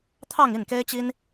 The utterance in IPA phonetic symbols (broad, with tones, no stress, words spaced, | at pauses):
t̪ʰɑ˥˧ŋi˥˩nke˥ɪ̯t͡ɕi˥n